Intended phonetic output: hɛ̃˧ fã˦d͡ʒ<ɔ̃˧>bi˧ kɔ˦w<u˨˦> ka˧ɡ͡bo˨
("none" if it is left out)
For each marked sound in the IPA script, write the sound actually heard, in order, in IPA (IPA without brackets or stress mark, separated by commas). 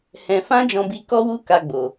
ɔ̃˧, u˦